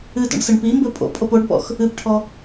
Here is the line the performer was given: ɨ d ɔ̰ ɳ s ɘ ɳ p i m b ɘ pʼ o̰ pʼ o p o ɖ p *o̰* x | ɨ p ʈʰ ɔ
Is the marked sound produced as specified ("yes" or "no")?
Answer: no